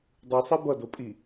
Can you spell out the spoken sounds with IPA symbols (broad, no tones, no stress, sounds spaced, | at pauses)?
dˤ ɯ sˤ e b ʌ d o pʼ i